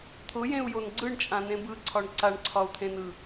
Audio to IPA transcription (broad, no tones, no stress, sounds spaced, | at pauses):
t̪ʰ ʊ j ẽ u̯ j o n ɡ͡ǀ ɯ ɳ t͡ʃʼ ã n ẽ b ɯ ǀʰ ɒ ɳ ǀ a ɳ ǀʰ ɒ u̯ t̪ʰ ẽ n ɯ